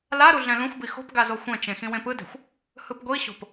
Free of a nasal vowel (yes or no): no